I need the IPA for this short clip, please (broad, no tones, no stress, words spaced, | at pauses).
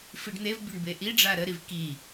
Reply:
fiɖn̪evbʲoɳ beʔiɖ͡ʐa ɾəɾiv ki